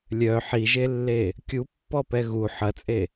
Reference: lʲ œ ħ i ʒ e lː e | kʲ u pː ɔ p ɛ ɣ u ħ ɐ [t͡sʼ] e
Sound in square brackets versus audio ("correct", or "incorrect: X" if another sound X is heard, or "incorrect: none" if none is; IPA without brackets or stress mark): correct